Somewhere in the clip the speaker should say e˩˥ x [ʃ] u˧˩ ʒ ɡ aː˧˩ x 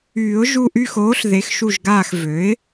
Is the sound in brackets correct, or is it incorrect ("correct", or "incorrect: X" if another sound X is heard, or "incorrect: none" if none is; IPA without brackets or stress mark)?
correct